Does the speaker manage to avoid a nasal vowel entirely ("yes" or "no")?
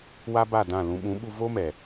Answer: no